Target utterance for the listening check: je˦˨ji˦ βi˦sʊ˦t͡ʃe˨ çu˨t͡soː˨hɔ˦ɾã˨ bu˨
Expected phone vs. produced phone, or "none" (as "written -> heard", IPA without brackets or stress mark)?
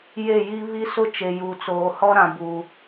ç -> j